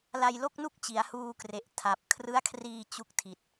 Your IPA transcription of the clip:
la˧jlo˥˩k̚nu˥˩k̚t͡ɕi˩˦a̯ huː˧kre˨˩ʔ tʰa˨˩p̚ kʰrɯ˦˥a̯kʰriː˧ t͡ɕu˦˥k̚tʰi˨˩t̚

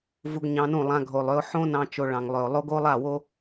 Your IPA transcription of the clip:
vu˧ɡɲɑ̃˧nũ˦˨lˠã˧ ɡʱo˨lˠø˧ʊ̯ ħõ˦nɑ̃˧ t͡ʃo˧ɭɑ̃˨ŋlˠø˨ʊ̯ lˠo˦ɡo˦ lˠa˦˨wo˦

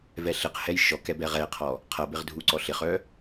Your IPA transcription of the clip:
vɛɬɪqhɛj ʃɔkɛ bɛʁɛqʰɔ | qʰʌbɪʁ dʱuǀɔɬɪχœ

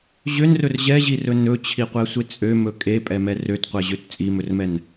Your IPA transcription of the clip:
ʑønrɵr ʑɛʑirɵ nɵt͡ɕʰiqʷɛsʷe t͡sʼømɵ kʼepʼɛmɛ røtqʷɛʑøt t͡sʼimɵrmɛn

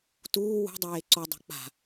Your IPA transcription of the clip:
tuː wṳdˤeː ǀodˤṳ k͡pa̤

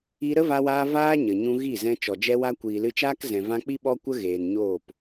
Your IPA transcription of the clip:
i˧ɾə˦va˧waː˧ vaː˦ɲə˨ ɲũ˧ ɣi˦˨zɛ̃˧ t͡ʃɔ˨d͡ʒɛ˧wa˧ kʷiː˨lɨ˧t͡ʃaː˦k zɛ̃˨vã˧k͡pi˦ ɓɔ˦kʷə˦ ɣeː˨nɲoː˦˨p

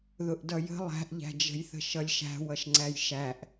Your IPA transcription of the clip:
ðʊʔdʌjə̤ lˠæ̤ʔʎæ̤d͡ʒə̤jθə̤ ʃʌlʲʃæ̤ wʌʃŋ͡ǀæjʃæʔ

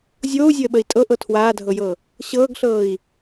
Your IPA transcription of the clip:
zʲoːu̯zʲəːɓəi̯ tʼɤʔɤ tʰwaːdʱɤjɤ | ɕɤːɡɬɤːi̯

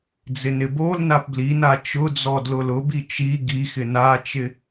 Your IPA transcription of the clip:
d͡zɪnɪbolnap blina t͡ʃʊd͡zɔ dlʊlʊbi t͡ʃi ɡixɪ nat͡ʃɪ

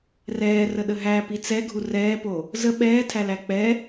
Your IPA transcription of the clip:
rɛːrəɗə ɦæ pit͡sɛɡʱu rɛːpo | zə ɓɛːtʰælæ k͡pɛ

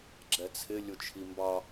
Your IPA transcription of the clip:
ɡ͡ǁɛt͡sʰɪ lʲʊt͡ʃʰimbɑ

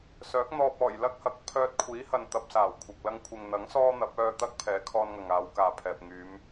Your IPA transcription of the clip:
sœː˨˥k̚n̪ɔː˧p̚ ɔː˨˩jlɐ˥k̚hɐ˨˥k̚ pʰœː˧t̚kʷʰiː˨˥hɐ˨n t̪ɐ˨p̚saː˨˩w kʷʰɐ˨k̚ lɐ˧ŋkʷʰɪ˨ŋ n̪ɐ˨˥ŋ sɔː˥n̪ɐ˨˥p̚ œː˧ t̪ɐ˥k̚pʰɛː˨˥ kʰɔː˧nŋɐ˨ŋaː˨˧w kaː˨pʰɛː˨p̚ ŋyː˨˧m

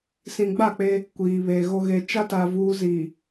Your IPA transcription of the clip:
sĩ˨ɡ͡ba˦˨k͡pe˦ | kʷiː˨βe˨ ɣo˨ɣe˨t͡ʃa˦ta˨ vuː˦ziː˨

